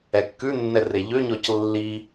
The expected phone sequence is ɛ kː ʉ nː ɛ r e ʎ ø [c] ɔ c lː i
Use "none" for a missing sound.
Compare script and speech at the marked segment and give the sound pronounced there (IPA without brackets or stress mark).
ɲ